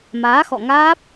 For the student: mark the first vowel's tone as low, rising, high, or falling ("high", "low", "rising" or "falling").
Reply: rising